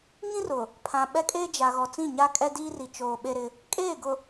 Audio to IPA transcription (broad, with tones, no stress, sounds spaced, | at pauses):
ŋ ĩ˦ r ʊ˨ | pʰ ã˨ ɓ ɛ˦ kʼ eː˦ d͡ʒ a˨ ɣ ɔ˨ t͡s ĩ˦˨ ɲ a˦ kʼ ɛ˦ d iː˦ r i˨ t͡ʃ oː˨ ɓ e˦ ɾ ɪ˦ | kʼ eː˦˨ ɡ ʊ˨